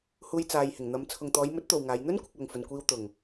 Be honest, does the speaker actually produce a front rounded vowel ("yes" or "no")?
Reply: no